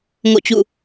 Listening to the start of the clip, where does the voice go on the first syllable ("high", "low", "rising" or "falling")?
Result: falling